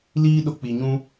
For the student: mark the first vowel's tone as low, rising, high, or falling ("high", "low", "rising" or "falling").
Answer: high